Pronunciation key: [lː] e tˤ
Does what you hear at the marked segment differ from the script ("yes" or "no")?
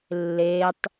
no